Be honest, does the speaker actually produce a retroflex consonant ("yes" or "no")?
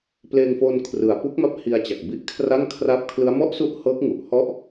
no